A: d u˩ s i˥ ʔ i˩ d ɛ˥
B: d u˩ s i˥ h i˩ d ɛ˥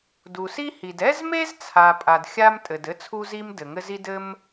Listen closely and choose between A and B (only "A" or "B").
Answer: B